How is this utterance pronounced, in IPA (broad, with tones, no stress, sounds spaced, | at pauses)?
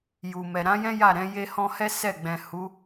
j u˨ m ɛ˨ ɾ ã˨˦ j ɛ̃˦ j a˦˨ ɾ ɛ̃˨˦ j e˧ h ɔ̃˧ h ɛ˦ s ɛ˦˨ ɡ͡b ɛ̃˨ h u˨˦